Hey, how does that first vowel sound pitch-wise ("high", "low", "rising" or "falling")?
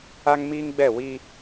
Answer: high